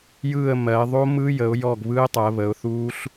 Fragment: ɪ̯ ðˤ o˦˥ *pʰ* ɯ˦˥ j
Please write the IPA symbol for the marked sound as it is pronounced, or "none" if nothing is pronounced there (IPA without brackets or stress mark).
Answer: m